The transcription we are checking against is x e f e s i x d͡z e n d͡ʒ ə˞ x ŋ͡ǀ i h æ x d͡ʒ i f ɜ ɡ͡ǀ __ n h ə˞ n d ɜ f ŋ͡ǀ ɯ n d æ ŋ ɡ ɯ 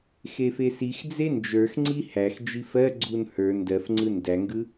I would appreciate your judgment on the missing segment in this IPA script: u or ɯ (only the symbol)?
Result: u